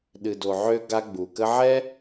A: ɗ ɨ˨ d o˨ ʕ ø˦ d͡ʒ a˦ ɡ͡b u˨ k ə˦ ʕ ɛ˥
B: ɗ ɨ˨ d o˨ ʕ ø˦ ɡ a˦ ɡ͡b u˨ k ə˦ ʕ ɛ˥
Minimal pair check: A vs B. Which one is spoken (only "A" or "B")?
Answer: B